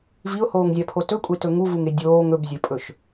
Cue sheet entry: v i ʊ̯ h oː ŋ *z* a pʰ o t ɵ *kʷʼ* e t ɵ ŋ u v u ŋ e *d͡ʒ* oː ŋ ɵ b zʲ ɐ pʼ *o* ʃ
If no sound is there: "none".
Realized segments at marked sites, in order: zʲ, kʷʼ, dʲ, ɵ

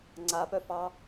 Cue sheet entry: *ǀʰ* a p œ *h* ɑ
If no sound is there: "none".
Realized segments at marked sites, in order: ŋ͡ǀ, f

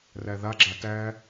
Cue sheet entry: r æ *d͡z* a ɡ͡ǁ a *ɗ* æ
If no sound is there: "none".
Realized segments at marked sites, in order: ð, t

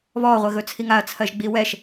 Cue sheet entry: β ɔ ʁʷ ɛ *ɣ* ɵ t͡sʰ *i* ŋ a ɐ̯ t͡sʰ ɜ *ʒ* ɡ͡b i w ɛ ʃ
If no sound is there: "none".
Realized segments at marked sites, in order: ɣ, i, ʒ

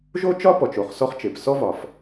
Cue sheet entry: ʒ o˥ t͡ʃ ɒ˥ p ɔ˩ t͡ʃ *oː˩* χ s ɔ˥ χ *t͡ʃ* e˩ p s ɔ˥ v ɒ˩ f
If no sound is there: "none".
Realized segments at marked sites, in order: o˩, t͡ʃ

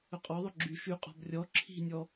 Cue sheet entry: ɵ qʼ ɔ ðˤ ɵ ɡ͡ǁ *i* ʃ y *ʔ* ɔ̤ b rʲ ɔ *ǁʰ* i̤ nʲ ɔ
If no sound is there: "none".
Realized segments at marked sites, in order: y, qʼ, ǁʰ

